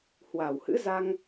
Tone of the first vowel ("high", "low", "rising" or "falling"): low